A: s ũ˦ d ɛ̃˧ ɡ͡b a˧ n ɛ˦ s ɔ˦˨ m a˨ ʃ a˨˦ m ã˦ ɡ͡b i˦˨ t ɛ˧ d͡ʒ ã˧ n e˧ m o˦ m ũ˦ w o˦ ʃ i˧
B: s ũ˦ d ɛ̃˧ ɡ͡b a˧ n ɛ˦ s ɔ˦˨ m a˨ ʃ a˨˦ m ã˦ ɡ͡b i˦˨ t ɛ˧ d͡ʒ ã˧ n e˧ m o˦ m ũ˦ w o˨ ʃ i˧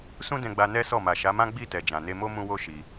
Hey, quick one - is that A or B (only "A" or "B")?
A